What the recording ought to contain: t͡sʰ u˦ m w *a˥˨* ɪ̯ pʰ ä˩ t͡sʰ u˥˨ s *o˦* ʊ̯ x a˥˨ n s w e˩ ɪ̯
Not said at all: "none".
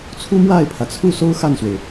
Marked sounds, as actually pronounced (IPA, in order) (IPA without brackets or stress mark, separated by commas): a˥˨, o˦